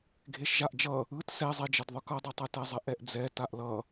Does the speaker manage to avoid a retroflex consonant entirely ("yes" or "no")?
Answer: yes